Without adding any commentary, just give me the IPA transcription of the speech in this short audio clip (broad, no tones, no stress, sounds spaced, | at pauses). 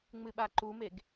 ŋ͡m ɨ ɓ a ǃ u m e ɡ